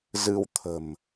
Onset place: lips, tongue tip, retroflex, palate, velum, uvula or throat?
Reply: tongue tip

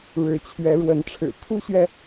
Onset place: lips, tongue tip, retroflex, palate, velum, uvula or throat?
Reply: retroflex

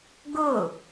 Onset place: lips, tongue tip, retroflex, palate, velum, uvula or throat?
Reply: velum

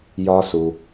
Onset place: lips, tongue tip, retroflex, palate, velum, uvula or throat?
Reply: palate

